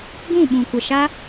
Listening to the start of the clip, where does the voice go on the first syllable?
falling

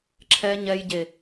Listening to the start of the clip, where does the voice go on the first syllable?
low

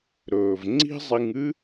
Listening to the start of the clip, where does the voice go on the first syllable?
low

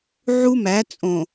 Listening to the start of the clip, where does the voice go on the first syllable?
high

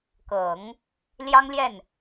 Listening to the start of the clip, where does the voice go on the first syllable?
low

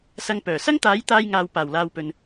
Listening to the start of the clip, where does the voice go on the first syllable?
low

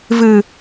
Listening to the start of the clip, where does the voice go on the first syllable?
low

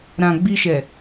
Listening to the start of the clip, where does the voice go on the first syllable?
low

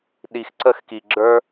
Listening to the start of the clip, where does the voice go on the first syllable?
low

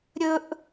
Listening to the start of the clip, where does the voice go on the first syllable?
low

